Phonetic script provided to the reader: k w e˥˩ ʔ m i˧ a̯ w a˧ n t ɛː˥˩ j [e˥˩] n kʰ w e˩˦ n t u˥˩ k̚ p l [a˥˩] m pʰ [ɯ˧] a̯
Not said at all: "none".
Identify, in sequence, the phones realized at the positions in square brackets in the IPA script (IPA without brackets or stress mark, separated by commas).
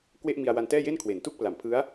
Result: e˥˩, a˨˩, ɯ˦˥